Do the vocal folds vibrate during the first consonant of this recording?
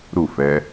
yes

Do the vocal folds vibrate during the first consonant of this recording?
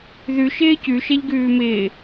yes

